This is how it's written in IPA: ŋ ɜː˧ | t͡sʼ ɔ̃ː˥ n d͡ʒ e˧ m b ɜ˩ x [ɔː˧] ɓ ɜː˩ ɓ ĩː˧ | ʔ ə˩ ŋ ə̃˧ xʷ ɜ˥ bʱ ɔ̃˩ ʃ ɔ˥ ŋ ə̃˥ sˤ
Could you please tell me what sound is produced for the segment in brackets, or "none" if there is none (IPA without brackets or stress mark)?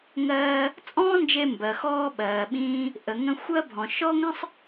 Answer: ɔː˧